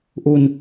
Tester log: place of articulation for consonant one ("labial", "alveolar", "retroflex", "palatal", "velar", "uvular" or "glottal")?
glottal